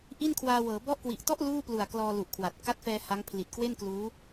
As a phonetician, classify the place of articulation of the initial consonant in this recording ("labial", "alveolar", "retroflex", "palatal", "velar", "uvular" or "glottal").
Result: glottal